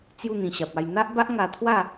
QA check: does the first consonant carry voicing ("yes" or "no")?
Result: no